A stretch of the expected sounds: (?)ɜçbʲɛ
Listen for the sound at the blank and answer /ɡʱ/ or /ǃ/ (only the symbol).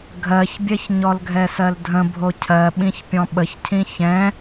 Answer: ɡʱ